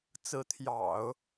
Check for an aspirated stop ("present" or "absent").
present